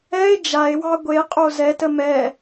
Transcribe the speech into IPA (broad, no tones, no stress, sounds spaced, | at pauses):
ɛ e̯ d͡ʒ a e̯ w ɑ ɡʷ e qʼ o z ɛ t ə m ɛ